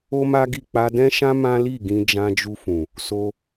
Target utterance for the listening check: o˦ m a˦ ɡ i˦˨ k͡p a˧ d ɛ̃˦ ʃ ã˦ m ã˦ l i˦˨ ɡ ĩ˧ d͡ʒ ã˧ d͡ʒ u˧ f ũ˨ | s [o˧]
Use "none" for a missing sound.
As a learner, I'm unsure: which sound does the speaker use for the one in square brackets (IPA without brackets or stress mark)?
o˧